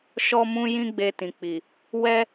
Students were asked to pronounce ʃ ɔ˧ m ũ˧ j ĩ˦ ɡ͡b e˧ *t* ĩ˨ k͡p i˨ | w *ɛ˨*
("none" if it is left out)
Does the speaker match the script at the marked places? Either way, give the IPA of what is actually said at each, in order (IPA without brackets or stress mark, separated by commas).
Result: t, ɛ˦